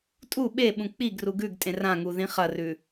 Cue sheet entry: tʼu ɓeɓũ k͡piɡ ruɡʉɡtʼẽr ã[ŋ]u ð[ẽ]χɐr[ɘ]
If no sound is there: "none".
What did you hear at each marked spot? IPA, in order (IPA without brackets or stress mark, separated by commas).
ŋ, ĩ, ʉ